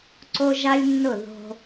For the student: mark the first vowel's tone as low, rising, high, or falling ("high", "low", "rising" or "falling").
high